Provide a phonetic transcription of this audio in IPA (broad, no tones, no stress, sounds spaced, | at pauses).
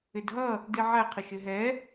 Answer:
ɪ d ɦ ʌ | d i ʕ æ qʰ ə ʃ ɪ ɦ ɛ